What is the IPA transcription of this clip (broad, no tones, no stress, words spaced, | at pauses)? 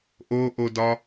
ʔoʔodɒ